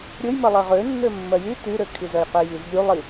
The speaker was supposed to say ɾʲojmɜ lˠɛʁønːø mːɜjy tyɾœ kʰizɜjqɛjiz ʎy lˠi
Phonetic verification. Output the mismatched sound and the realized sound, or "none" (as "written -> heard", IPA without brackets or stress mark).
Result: œ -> ø